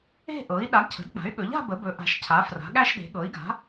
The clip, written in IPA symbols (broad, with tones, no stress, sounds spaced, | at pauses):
e̤˥˧ ʔ ɤ˩˥ i̯ ɗ a˩˥ ɡ cʰ ə̤˩˥ d k͡p a̤˩˥ y̯ ɠ ɵ˩˥ ʎ a̤˥˧ b ə˩˥ b ɵ˩˥ ʔ a̤˩˥ ʃ cʰ a˩˥ f r a̤˩˥ ɠ æ˥˧ ʃ ɗ e̤˩˥ ɠ ɤ˩˥ i̯ ɡ a̤˩˥